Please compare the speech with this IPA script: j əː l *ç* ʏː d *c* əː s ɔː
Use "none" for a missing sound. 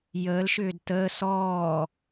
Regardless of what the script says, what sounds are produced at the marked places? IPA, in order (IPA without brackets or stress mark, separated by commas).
ʃ, t